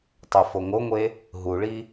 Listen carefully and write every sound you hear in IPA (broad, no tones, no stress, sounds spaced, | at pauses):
tˤ o f o ŋ o ŋʷ e | ɦ u ɭ i